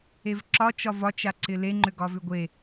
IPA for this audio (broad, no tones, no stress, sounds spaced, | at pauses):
e v ǁ ɒ t͡ʃ ɒ v ɒ t͡ʃ a ǀ ɪ l e ŋ͡ǃ ʏ ɡ ɒ v ʏ ɡʷ e